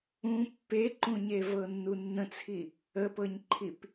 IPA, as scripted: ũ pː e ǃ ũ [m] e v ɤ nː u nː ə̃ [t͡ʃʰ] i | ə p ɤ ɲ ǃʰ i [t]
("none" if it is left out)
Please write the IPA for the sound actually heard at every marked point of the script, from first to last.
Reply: ɲ, t͡sʰ, p

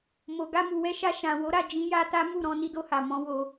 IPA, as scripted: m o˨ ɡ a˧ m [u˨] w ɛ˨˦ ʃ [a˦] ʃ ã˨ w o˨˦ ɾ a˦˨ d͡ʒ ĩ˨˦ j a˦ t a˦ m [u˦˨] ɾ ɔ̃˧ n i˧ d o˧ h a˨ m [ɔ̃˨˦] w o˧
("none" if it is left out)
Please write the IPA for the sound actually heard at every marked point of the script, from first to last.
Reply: u˨, a˧, u˦˨, ɔ̃˨˦

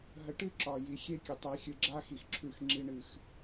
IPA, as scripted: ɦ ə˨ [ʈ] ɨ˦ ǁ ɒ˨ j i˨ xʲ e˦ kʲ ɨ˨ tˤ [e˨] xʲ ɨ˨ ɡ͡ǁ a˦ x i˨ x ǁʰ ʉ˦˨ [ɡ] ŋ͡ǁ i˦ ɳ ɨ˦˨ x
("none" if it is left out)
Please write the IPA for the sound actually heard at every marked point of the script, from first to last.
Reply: ʈ, e˨, x

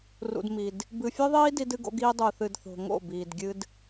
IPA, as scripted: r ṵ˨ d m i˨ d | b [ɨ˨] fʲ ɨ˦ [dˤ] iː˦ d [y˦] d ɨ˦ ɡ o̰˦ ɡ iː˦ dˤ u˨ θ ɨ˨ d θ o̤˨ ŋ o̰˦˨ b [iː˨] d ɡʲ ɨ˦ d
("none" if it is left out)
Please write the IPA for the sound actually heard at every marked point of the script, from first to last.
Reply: ɨ˨, ðˤ, i˦, iː˨

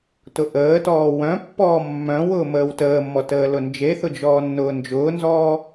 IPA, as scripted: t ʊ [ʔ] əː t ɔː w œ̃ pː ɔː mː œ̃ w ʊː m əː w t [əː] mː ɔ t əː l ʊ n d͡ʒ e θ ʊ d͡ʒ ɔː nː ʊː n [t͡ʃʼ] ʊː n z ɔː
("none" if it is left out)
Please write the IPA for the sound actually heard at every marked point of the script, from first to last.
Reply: ʔ, əː, d͡ʒ

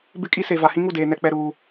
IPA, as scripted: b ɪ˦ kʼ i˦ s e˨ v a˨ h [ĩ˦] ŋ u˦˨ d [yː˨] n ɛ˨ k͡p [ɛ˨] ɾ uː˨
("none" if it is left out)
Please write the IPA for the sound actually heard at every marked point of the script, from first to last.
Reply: ĩ˦, eː˨, ɛ˨

